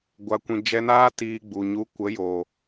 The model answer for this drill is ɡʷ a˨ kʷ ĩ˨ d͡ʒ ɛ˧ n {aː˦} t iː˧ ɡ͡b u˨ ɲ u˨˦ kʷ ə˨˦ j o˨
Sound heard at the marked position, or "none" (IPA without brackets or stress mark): aː˦